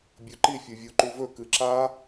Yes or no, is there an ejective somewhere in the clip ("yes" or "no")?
no